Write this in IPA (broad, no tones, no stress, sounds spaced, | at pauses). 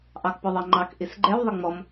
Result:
ʔ ɑ k p ɔ ðˤ ɑ ŋ͡ǃ ɑ k ʔ i s ɡ͡ǃ ɛ w ðˤ ə ŋ͡m ɔ m